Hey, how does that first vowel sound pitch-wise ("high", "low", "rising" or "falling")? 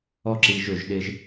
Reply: high